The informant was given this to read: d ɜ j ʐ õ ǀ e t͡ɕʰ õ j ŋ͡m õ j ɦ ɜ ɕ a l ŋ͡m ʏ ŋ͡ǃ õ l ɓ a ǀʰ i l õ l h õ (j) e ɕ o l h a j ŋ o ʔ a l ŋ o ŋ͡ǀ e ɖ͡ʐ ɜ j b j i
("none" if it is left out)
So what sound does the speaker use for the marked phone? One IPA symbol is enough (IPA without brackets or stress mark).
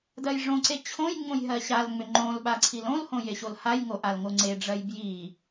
j